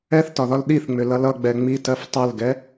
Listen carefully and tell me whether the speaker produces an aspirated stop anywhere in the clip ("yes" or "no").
no